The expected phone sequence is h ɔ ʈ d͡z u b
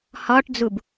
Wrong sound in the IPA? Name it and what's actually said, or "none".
none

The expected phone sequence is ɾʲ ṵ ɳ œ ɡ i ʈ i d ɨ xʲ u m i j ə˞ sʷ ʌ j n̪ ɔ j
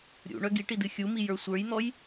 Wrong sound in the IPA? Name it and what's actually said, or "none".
ʌ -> ə˞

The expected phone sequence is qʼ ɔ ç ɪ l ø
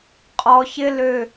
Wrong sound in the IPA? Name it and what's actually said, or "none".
none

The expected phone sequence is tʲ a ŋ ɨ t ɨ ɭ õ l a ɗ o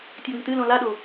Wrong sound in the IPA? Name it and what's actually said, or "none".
ɭ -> l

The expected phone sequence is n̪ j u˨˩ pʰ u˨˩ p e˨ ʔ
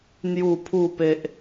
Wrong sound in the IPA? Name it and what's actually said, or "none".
none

